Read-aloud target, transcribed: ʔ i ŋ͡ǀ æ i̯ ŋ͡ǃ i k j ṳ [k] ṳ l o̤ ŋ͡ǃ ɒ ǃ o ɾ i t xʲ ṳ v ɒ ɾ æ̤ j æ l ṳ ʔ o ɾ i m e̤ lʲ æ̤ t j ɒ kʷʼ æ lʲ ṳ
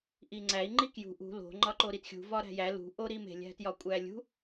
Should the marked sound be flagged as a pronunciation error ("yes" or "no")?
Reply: yes